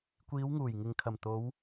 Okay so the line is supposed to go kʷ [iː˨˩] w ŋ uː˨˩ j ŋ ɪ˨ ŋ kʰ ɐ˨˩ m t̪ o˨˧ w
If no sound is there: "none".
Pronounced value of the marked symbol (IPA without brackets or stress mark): iː˨˧